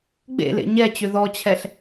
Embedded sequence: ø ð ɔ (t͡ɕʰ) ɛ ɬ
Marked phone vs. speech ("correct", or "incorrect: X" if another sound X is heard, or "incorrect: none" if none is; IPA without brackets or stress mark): correct